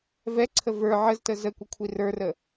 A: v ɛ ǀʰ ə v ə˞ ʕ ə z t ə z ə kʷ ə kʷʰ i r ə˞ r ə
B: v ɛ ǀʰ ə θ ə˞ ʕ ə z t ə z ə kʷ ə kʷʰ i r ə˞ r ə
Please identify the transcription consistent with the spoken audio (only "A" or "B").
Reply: A